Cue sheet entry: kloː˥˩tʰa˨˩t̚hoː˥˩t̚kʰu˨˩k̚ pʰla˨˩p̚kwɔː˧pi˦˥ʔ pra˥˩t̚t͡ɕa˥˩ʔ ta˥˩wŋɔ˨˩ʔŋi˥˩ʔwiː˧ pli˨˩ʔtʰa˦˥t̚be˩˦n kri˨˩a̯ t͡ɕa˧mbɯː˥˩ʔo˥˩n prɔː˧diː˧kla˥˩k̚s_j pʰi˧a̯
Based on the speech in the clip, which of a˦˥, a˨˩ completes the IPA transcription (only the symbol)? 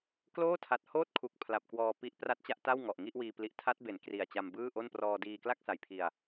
a˨˩